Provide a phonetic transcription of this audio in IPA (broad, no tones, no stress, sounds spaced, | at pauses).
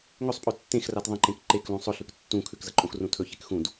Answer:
ŋ ɵ sˤ pʼ ɵ tː ẽ x r a t ðˤ ɐ̃ ǃ ẽ k ǃ e k l ũ sˤ ɵ ɬ ʉ k tː ũ kʰ ʉ k z ɐ ǃʼ õ x r ũ tʰ ɵ ç e k x ũ d